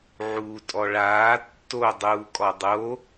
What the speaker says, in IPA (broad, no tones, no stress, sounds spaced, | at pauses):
ʕ uː tʼ ɔ ɭ aː tː o dˤ uː kʼ ɔ dˤ o